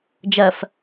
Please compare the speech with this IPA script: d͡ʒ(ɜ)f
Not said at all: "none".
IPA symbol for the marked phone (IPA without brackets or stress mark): ɜ